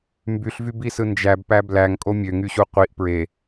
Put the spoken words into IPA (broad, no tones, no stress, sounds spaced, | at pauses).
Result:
m b y ɬ v y b i s ɯ n d͡ʒ æ b p æ b l æ ŋ kʼ o mʲ ø ŋ y ɕ u qʷ i ʔ p ɹ e